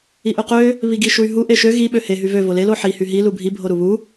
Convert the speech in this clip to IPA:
i ʔ ø q ø | β i ɡ i ʃ u y̯ ɦ u ʔ e ʃ ø ɣ i ɓ ø h e ɦ y v ø v o l e l o ħ i h y ɦ i l u bʱ i bʱ o ɾ u β u

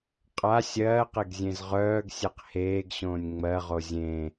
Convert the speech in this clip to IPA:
qʼ a sʲ ɜː q e ɡ zʲ ẽ z ʁ œː ɡ sʲ e q h eː ɡ ɕ õː nʲ ŋ͡m ɜ ʁ o zʲ ẽ

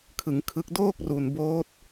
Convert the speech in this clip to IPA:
kʰ ɯ˩˦ ŋ kʰ ɯ˦˥ k̚ d oː˥˩ k̚ r u˨˩ n b oː˦˥ t̚

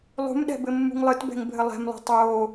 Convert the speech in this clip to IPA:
lˠ ṳ m ɗ ɛ̤ b ɘ mː ṳ ŋ lˠ ɨ t b ɛ̤ ŋ bʱ ɘ lˠ ɛ̤ m lˠ o̤ tˤ oː

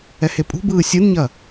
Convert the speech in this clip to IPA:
ɛ h e pʼ ṳ b ɯː sʲ ɯ n ɲ ɐ

